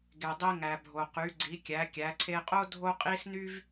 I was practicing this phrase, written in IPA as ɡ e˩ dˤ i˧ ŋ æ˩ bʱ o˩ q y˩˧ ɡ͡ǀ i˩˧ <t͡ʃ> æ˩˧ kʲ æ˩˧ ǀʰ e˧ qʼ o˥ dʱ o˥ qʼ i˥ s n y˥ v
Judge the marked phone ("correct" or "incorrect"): incorrect